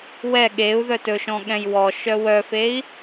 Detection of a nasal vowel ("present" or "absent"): present